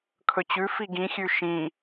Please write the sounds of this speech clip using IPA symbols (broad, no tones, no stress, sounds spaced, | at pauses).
kʰ ɵ t͡ɕ ʉ f i ɡ ĩ xʲ ʉ ʃ ĩ